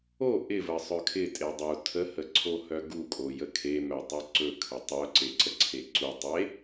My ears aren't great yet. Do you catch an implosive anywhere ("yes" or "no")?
no